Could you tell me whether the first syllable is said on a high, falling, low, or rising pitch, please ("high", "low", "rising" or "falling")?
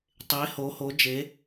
rising